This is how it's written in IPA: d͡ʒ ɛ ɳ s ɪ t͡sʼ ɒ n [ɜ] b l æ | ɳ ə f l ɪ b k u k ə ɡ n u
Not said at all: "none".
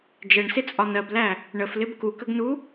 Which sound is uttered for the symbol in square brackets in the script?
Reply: ɜ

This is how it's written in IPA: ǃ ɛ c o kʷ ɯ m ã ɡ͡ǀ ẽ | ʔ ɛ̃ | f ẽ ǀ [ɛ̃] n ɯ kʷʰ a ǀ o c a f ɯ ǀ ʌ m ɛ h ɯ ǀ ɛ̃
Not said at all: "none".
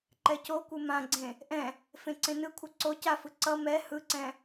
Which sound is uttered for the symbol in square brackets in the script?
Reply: ẽ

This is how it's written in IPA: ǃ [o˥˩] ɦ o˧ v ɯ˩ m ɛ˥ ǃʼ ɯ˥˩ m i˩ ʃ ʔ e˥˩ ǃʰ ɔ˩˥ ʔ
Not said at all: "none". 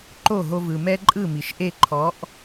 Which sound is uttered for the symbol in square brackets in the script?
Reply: o˥˩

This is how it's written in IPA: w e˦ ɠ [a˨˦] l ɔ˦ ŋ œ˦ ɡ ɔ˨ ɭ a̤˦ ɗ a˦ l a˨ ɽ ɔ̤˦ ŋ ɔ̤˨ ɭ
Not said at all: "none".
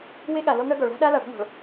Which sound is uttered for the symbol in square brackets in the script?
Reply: a˨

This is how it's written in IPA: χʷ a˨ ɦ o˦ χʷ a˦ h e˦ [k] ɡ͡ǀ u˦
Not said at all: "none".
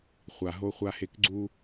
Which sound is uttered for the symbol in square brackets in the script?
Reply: k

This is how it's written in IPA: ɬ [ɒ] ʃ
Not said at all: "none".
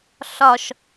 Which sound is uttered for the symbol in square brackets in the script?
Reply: ɒ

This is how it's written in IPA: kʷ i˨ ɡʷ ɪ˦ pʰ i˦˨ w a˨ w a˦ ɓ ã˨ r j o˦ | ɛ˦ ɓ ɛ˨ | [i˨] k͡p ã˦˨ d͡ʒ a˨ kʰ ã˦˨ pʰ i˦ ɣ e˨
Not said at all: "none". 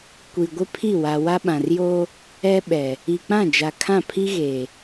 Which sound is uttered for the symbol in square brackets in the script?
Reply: i˨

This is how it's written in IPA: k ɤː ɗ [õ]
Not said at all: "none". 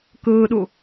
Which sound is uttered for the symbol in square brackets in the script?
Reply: o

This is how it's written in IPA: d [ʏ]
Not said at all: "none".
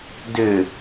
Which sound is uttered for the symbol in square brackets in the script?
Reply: ʏ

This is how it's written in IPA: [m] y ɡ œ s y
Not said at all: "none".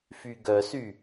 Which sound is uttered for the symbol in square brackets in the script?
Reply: f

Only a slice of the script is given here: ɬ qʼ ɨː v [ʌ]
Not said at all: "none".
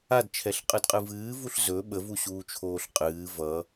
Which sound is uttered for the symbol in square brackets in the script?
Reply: ʌ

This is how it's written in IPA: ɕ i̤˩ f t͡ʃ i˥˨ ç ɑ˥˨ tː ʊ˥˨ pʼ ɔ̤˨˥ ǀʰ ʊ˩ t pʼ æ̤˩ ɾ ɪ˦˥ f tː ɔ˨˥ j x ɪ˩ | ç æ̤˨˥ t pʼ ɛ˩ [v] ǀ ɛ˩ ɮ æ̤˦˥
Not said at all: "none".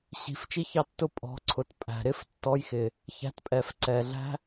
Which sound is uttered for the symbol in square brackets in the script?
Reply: f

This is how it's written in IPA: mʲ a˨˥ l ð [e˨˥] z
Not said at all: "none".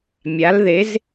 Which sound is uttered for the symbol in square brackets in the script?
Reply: e˨˥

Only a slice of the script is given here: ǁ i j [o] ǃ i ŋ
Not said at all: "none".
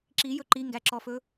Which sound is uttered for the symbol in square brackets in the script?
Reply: ɵ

